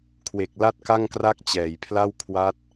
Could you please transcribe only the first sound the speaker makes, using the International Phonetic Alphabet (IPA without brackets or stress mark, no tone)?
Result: kʰ